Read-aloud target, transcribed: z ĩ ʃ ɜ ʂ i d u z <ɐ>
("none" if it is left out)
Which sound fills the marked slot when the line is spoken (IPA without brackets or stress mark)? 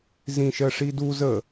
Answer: ə